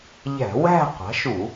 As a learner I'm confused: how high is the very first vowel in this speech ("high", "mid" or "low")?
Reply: low